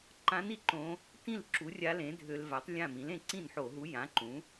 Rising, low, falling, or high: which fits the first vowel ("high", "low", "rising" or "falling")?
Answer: rising